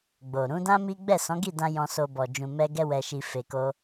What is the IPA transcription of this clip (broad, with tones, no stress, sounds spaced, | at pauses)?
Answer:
ɡ͡b o˨ ɾ ũ˨˦ d ã˦ m i˦ ɡ͡b ɛ˦˨ s ɔ̃˨˦ ɡ i˦˨ d ã˧ j ɔ̃˧ s o˧ b ɔ˨ d͡ʒ ũ˧ m ɛ˦ ɡ ɛ˦ w ɛ˧ ʃ i˧ f e˧ k o˦